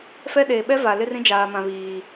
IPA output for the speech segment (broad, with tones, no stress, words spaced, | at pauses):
fɛ˦ɗeː˨ ɓɛ˦va˨ lɪ˦rĩ˦d͡ʒaː˨ mã˨βiː˨